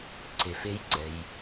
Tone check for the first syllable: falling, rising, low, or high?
low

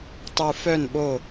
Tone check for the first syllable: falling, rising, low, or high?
low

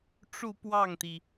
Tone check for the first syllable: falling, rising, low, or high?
falling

